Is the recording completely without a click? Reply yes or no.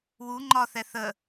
no